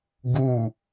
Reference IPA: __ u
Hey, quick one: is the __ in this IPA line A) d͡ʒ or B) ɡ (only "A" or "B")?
B